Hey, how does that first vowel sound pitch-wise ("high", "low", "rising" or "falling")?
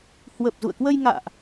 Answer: low